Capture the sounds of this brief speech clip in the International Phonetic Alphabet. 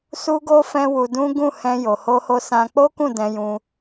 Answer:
su˧ɡo˧ fɛ̃˦wu˧dũ˦ ɡũ˦˨hɛ̃˧jo˨ ho˧ho˧sã˧ k͡po˦kũ˦˨ dɛ̃˧jũ˧

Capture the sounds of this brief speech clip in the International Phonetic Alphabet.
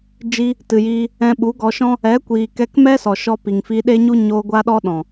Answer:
d͡ʒi˧ | tɨ˨jiː˧ | ɛ̃˧ɓu˨˦ɡɔ˧ʃɔ̃˦ | ɛ˨˦kʷiː˨ kɛ˧kmɛ˦sɔ˨ ʃɔ˧ pi˨ŋfi˧ɗe˦ɲu˦ ɲo˧ ɡʷa˧ɗɔ˧ɗɔ̃˨

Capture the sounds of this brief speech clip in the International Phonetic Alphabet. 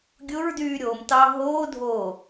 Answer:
ɡʲʊɹdyː ɾʲomtɑ ɦoː dʱoː

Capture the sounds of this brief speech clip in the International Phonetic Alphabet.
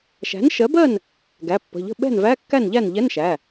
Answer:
ʃæ̤˩˥n ʃɜ˩˥bɜ˥˩n | ɡæ˩˧˩pːə̤˩˧˩ʎə̤˥˩ ɓɛ̤˥˩nvæ˧˥˧kːæ˥˩nʎæ˥˩n ʎɛ˧˥˧nʃæ˩˧˩

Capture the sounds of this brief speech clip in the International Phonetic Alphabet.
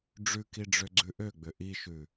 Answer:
ɖ͡ʐʉkiɖ͡ʐøɡ͡ǀʉ ʔøɡ͡bʏ ʔiʃʉ

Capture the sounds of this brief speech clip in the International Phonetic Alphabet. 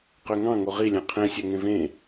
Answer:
qøŋɑ̃ ŋoʁi lʲɑ̃qʰɛ̃ sʲœŋẽvẽ

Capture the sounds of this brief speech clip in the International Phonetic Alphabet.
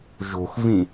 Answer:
ʒo̤xvĩ

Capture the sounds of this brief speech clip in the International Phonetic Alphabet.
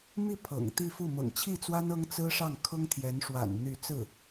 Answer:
mi˥˩ pʰɤ̰˨˩ŋ t̪i˥˧fu˥˩ mɤ̰˨˩ŋt͡ɕʰi˥˩t͡swa˥n ɤ˥ŋ t͡sɹ̩˥ʂɑ˥˩ŋ kʰʊ˥ŋt̪ʰjɛ˧˥nʂwa̰˨˩n n̪y˥˧ t͡sɹ̩˥˩

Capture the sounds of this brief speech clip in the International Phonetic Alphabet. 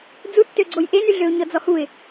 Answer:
d͡zutːøɡ͡ǀoj ʔenyɮøʊ̯ ɲɔd͡zɔhuɪ̯

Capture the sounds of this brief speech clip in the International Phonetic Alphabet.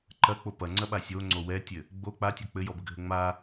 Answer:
ǃɐk͡po pɐŋ͡ǀɐɓa sʲoŋ͡ǀo wɛtʲɘ | ɡ͡bo k͡patʲɔ k͡pɘjɔbɘɡʱɘ ŋ͡ma

